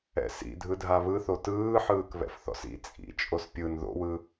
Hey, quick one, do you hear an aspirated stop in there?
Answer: no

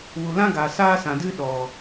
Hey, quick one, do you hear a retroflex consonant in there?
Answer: no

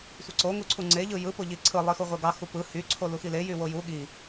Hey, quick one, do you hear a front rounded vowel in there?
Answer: yes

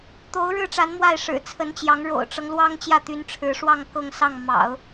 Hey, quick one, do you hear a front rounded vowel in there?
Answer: yes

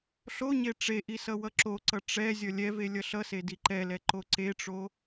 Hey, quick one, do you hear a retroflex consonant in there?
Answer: yes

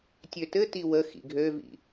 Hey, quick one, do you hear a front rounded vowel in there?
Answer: yes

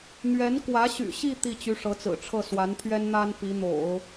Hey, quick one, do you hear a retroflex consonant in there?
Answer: yes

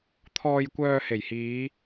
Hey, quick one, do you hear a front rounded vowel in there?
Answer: yes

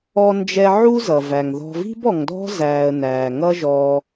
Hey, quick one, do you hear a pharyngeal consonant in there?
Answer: yes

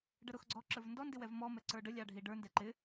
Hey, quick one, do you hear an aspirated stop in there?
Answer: no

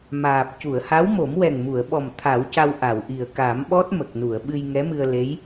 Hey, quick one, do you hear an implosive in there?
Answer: yes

